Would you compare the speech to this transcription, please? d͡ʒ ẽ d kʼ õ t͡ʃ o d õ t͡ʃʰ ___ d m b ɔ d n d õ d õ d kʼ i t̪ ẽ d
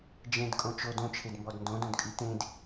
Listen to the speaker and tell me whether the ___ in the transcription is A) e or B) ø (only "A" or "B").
A